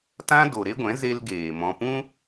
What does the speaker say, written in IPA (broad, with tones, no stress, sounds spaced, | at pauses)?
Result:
t ã˦ d o˨ ɾ e˦ ɡʷ ɛ̃˨˦ z e˧ l ɡ eː˨ m ɔ̃˧ p ũ˦